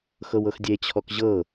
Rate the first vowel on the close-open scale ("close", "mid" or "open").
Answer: mid